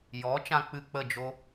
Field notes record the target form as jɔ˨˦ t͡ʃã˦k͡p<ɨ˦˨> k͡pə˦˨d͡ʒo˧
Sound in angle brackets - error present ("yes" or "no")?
no